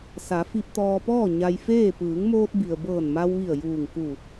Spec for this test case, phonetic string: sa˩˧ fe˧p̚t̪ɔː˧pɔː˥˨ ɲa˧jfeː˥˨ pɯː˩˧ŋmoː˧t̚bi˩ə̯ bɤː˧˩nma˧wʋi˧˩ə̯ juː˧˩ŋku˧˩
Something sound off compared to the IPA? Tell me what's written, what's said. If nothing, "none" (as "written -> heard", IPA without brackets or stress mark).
e˧ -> i˧